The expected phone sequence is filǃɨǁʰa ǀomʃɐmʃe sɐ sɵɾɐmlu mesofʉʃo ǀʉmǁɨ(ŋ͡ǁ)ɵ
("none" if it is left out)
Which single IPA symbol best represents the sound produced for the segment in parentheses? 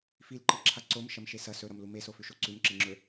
ŋ͡ǁ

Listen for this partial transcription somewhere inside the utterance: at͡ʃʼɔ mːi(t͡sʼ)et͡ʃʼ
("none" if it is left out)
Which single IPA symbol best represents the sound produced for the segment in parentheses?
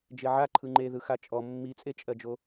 t͡sʼ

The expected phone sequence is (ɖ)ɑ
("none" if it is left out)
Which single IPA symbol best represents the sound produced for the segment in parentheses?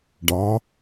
ɖ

